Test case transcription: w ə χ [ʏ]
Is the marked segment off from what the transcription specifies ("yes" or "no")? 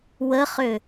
no